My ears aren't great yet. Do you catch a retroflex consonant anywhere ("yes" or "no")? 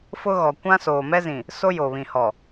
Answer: no